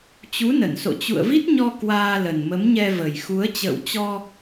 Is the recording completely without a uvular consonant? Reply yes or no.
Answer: yes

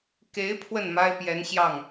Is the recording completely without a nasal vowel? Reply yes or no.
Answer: yes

